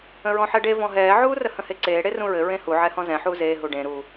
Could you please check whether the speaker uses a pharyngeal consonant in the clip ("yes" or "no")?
yes